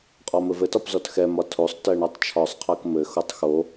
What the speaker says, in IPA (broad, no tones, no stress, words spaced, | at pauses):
qʼɔmɘvɘtɒp zɔtxɛmɒ tʰosˤ tɜɳɔtˤt͡ʃʰɒsˤqʰɜk mɘxotˤ xo